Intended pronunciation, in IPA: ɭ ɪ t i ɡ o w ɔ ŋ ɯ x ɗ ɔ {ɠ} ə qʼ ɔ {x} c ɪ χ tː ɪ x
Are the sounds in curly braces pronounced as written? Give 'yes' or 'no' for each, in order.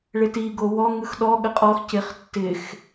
yes, yes

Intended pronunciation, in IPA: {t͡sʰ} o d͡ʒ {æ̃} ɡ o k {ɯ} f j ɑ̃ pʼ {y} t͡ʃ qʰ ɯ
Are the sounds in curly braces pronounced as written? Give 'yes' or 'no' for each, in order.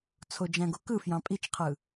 yes, yes, yes, no

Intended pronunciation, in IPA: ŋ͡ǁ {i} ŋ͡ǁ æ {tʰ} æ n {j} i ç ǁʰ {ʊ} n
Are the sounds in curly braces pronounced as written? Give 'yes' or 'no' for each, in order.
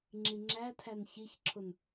yes, yes, no, yes

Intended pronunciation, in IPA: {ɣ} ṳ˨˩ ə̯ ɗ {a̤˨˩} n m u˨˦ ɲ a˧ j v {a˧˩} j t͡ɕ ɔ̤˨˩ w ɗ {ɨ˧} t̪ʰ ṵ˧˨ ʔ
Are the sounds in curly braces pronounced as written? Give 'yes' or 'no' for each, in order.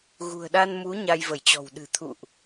yes, no, no, no

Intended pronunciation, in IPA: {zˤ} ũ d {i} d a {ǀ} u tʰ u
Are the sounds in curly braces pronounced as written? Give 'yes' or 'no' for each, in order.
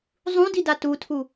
yes, yes, no

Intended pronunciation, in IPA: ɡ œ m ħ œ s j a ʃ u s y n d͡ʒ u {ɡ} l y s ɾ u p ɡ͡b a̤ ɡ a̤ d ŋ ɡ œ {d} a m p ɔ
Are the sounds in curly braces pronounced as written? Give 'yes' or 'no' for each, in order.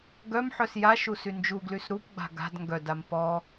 yes, yes

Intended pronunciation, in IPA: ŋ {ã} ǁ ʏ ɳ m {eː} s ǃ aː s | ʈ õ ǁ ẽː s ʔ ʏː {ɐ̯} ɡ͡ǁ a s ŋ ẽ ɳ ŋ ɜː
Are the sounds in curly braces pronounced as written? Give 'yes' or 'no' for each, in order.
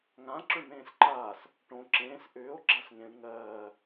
yes, no, no

